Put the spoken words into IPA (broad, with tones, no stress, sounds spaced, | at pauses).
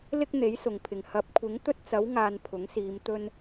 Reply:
l ɪ˥ k̚ n̪ e˨˥ j s ʊ˨˩ ŋ pʰ ɪ˨˩ ŋ h ɐ˨˥ p̚ kʷʰ ɪ˨˥ ŋ t̪ ɵ˥ t̚ t͡s ɐ˨˥ w ŋ aː˨ n pʰ ʊ˨˥ ŋ s iː˨˧ m t̪ ɵ˧ n